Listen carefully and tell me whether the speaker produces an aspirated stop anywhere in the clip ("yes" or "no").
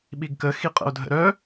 no